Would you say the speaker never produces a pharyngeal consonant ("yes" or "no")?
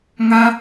yes